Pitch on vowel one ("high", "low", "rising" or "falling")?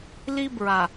high